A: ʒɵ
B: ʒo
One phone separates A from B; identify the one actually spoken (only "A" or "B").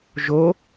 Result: B